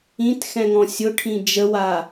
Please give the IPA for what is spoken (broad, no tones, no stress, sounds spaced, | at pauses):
ĩ t x ɛ̃ ŋ ɔ̃ sʲ ʊ ʈʰ ĩ d͡ʒ ə w a